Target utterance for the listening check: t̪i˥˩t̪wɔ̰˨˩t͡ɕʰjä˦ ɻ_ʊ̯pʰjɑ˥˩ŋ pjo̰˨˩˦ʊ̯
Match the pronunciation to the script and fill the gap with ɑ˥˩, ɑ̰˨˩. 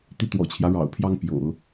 ɑ̰˨˩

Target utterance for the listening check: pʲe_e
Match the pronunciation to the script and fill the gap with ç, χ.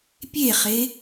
χ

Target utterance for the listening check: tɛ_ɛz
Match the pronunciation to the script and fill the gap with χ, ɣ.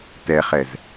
χ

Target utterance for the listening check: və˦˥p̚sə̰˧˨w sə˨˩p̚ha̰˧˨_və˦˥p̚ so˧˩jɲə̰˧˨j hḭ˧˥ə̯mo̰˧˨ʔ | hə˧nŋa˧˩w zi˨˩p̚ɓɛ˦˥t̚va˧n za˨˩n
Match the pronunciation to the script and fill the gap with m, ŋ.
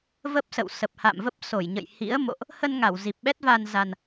m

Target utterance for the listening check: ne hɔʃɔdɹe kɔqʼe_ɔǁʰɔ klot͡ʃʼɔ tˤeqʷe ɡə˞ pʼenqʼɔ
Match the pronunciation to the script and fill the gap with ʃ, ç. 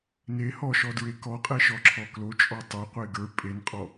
ʃ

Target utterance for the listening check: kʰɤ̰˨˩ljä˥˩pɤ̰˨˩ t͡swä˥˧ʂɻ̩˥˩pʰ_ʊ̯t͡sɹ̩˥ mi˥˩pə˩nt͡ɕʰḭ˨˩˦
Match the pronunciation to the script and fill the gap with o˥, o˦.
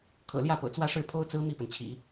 o˥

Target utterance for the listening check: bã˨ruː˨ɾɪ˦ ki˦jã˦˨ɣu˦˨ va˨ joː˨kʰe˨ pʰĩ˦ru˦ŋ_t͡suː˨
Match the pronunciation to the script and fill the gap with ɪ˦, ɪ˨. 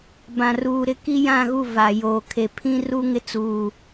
ɪ˦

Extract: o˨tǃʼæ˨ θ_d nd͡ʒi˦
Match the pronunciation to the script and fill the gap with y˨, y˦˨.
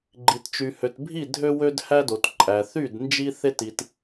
y˦˨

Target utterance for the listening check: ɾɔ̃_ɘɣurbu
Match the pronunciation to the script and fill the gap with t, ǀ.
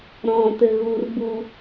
t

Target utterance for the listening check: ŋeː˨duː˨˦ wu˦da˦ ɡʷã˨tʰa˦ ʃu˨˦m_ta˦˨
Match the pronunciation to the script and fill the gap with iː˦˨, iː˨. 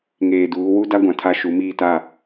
iː˦˨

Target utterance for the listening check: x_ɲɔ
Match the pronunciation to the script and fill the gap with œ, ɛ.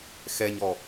ɛ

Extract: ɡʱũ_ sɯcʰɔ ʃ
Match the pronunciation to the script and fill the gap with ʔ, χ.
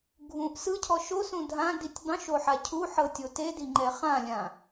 ʔ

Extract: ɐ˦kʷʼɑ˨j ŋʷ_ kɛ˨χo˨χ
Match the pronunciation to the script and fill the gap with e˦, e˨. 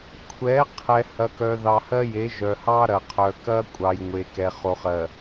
e˨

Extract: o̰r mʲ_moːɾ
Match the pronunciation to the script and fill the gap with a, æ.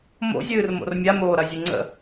a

